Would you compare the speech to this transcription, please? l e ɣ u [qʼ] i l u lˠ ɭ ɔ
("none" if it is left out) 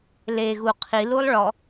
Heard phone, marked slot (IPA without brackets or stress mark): qʰ